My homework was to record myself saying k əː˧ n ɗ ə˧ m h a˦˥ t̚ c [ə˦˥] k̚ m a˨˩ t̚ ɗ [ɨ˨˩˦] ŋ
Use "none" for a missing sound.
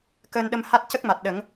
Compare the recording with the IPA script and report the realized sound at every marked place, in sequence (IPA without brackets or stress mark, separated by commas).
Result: ə˦˥, ə˨˩˦